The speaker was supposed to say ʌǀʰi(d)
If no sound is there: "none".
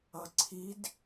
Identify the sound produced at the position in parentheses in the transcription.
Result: d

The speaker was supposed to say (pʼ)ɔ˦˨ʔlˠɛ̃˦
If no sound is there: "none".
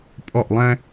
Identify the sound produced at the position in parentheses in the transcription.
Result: pʼ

